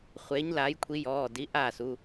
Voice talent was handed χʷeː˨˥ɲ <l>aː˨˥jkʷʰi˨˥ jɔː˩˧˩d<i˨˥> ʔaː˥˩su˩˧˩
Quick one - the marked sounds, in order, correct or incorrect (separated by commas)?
correct, correct